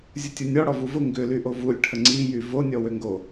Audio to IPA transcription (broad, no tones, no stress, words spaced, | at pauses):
zʲʊtʲunʲɔ ɽɔvuvʊ ŋɡʏlyʔo vulʲ ʈʰəŋ͡ǀijy vonʲɔ wøŋɡo